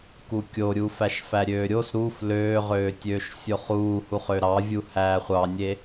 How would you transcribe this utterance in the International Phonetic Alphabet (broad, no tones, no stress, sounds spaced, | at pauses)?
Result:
k u kʲ o ɾʲ u f æ ʃ f æ ɾʲ øː ɾʲ o s ɾ u f l øː ʁ øː tʲ øː ʃ sʲ o χ uː h u χ ø ɾ ɑ vʲ u h æː χʷ ɑ nʲ e